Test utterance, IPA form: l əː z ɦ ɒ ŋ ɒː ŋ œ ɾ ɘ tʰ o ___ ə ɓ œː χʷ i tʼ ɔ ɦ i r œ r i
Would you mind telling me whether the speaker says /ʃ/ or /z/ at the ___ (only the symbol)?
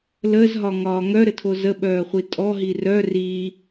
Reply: z